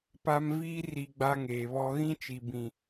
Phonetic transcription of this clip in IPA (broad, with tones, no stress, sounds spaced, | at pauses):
p a˦ m v iː˦ r i˨ ɡ͡b a˦ ŋ eː˨ β ɔ˦ ɣ ĩ˦ t͡ʃ i˨ b ĩ˨